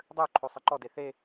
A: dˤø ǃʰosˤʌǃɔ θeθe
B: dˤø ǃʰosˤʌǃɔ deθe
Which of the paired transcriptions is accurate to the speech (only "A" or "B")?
B